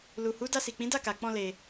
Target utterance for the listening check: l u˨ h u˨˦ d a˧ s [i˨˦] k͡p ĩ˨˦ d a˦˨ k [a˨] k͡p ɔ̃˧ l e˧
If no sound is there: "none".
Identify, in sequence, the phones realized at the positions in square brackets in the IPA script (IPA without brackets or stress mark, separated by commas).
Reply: i˨, a˨